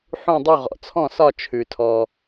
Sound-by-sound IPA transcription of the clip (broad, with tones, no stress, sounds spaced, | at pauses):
ħ ũ˦˨ dˤ u˦˨ ʁ ɔ̰˩ t͡sʰ ɔ̃˦˨ s ɒ˦˨ t͡ʃʰ ʉ˩ tʰ ɔ˩